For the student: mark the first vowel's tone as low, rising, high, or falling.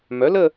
rising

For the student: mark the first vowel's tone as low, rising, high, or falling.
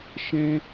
high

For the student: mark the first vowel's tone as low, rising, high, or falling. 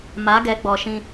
rising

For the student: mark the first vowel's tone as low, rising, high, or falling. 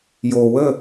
low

